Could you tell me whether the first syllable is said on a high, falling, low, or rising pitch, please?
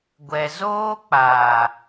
low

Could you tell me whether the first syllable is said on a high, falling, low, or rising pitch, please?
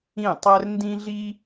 falling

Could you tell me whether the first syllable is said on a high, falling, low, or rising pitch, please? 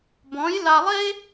rising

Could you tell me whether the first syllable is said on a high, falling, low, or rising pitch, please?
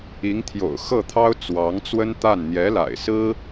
rising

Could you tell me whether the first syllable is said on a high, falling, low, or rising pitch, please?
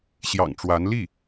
low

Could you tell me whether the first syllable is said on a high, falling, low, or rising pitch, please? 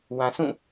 low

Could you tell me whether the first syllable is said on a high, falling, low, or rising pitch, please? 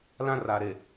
high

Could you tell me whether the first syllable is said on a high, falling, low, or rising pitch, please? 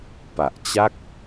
low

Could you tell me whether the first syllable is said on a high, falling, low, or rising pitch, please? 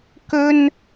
high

